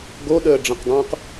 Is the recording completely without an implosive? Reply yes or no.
no